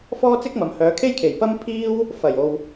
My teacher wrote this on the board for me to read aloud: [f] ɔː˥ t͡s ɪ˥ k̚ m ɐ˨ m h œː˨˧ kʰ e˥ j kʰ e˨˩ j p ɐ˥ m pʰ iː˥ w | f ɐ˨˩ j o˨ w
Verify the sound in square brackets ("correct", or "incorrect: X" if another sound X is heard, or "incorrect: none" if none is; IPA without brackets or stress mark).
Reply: correct